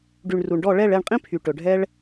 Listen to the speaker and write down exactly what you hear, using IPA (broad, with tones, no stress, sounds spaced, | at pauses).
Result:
ɖ y˨ ɳ r u˨ ɳ ɖ ɔ˦˨ ɭ ɛ˦˨ ɭ ɛ˦˨ ɳ qʼ ĩ˦ pʰ y˨ ʈ ɵ˨ ɖʱ ɛ˦ ɭ